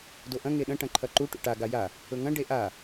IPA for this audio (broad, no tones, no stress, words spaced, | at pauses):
doʔɐ̃ ŋeɗɐ̃ ʈɐ̃ǃʰɐǃu ʈṵʈa ɡaja | ɵŋɐ̃ ɖeʔa